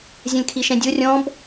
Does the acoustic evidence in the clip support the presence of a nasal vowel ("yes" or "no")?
yes